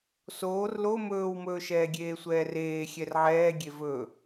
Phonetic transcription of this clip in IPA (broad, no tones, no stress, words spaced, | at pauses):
soːr lo mɵːwmɵːʃɛː ɡʲeːsʷɛːreː xʲɛrʕɛːɡʲe vɵ